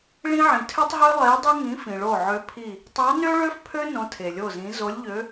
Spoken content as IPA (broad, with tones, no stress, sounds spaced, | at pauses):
ɭ ĩ˥ ʕ ĩ˨ tʰ ø˥ tˤ ɦ ø˥ lˠ e˧˥ dˤ y˥ ŋ ĩ˧˥ f ĩ˨ ɭ o˦˨ ʕ ø˧˥ pʰ i˦˨ | tˤ ɑ˧˥ n ø˥ ɭ ø˥ f pʰ ø˥ n õ˧˥ tʰ e˨ lʲ o˦˨ z ĩ˧˥ z o˧˥ lʲ ʎ ø˧˥